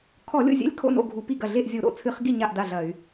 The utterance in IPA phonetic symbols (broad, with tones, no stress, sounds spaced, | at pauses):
kʰ ɔ˧˩˧ lʲ o̰˥˩ zʲ ɛ̰˥˩ lʲ kʰ o̰˥˩ n o̰˥˩ ɡʱ u˧˩˧ p i˥˩ ɡ ɐ˥˩ ɮ e˥˩ ʔ zʲ o˧˩˧ ɾ o̰˥˩ t͡sʰ ɨ˧˩˧ χ ɡ i˥˩ ɲ a˥˩ ʔ d a˥˩ ɮ ɐ˧˩˧ y̯